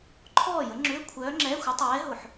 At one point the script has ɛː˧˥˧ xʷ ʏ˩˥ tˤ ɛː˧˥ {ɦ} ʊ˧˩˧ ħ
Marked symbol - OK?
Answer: yes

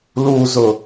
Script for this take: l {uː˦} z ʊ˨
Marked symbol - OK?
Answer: no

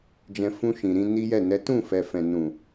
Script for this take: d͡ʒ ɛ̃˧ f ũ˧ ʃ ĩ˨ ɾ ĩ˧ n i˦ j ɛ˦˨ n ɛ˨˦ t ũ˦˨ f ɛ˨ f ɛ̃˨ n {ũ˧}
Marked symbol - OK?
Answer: no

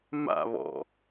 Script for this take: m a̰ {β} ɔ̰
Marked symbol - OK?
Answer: yes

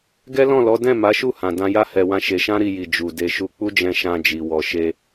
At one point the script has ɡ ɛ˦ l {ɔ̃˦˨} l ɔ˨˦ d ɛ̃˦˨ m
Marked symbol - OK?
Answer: yes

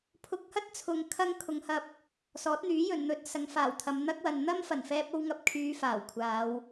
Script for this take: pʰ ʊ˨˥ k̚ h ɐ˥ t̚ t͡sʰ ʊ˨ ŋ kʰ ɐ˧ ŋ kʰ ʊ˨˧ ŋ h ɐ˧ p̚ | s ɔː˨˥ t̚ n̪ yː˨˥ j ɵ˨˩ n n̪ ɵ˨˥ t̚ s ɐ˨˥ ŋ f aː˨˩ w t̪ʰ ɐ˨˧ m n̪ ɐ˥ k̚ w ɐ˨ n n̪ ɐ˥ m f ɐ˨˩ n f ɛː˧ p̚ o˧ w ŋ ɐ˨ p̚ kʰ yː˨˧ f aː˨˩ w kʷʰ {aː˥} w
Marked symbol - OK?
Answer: no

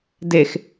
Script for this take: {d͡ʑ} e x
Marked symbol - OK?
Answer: no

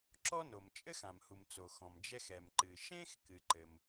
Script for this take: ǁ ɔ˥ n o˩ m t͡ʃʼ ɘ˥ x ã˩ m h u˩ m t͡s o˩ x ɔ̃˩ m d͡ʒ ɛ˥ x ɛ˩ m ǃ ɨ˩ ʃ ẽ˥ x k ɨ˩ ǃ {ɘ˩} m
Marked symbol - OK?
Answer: yes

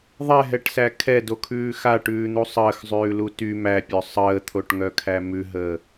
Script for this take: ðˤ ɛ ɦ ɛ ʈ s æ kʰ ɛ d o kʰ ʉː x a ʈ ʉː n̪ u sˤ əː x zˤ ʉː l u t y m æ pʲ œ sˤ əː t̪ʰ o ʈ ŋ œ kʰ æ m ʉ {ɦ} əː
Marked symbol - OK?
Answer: yes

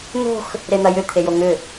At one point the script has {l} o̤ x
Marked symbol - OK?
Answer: no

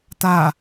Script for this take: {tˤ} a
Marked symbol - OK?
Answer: no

